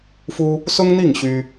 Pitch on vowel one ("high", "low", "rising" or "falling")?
high